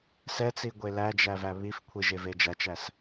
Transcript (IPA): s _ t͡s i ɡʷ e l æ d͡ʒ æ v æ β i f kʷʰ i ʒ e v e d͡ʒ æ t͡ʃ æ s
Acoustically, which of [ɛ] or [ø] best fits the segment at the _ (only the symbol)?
ɛ